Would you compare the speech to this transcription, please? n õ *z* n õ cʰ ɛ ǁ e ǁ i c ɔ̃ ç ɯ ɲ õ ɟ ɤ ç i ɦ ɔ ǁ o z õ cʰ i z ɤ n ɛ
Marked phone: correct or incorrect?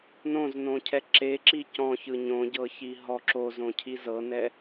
correct